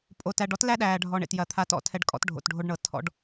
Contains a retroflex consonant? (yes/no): yes